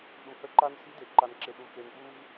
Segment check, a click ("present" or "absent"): present